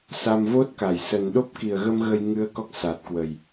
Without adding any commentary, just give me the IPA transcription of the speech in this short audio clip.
sa˧mvo˦˥t̚ka˧˩j sə˨˩nɗo˦˥p̚ ki˨˩ə̯ɣə˧m ɣə˧jŋɨ˨˦ə̯ kɔ˦˥k̚saː˨˩t̚kwə˨˩j

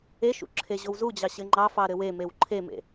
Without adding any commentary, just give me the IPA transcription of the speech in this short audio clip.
eʃṵ ǁʰeʑowzud͡ʑɑ ɕɘŋ͡ǃɑfɑ ɾɘwemew ǃʰemḛ

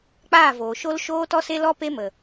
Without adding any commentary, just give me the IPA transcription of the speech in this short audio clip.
k͡paː˦˨voː˨ʃo˦l ʃoː˦tɔ˦se˦ lɔ˦ pe˦mə˨

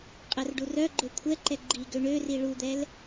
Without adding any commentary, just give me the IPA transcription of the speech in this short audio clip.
qʼɛrɖurœɡ͡ǃø kʷʰɛǃɛ ɡ͡ǃi ɡøɳøri ɭud̪ɛl

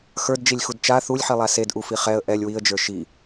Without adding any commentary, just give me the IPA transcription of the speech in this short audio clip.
xə˞dd͡ʒilʲxud t͡ʃa θulʲħilˠa sedʔufi χɛə̯ ʔɛlʲ wiə̯d͡ʒə˞ ʃi

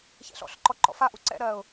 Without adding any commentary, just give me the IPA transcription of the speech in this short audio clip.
çɛ̰ɬɔ̰ɬǃɔ ǃɔ̰faʔu ǀɛ̰ɾɜːʊ̯

